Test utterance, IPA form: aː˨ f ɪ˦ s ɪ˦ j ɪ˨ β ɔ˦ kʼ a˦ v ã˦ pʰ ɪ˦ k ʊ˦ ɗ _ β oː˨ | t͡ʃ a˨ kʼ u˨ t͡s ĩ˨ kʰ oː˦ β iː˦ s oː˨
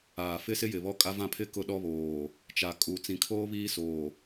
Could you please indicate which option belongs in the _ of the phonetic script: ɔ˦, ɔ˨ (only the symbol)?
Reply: ɔ˦